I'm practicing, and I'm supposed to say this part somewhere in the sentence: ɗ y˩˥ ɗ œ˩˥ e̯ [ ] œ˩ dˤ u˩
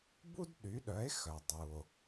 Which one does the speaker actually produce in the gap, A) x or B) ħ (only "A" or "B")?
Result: A